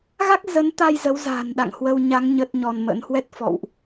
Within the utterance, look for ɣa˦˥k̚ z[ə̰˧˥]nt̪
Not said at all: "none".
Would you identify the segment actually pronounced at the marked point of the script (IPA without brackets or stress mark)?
ə˨˦